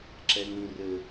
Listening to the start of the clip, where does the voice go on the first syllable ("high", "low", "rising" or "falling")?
high